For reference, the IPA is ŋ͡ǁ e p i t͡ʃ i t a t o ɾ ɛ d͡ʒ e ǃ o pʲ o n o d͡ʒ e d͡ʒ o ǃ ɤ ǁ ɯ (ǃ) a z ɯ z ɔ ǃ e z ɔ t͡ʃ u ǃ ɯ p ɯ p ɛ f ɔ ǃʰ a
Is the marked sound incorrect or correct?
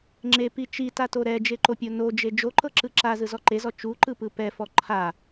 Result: incorrect